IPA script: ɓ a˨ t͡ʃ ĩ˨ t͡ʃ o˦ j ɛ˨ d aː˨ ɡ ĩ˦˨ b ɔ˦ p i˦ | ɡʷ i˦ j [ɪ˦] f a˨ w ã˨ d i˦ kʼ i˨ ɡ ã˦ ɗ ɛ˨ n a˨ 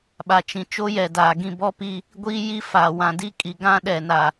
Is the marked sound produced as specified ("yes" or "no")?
no